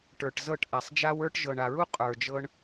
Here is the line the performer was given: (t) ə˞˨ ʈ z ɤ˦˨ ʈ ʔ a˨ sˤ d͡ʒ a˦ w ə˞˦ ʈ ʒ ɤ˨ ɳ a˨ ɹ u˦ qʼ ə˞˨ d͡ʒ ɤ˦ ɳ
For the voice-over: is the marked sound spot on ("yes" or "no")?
no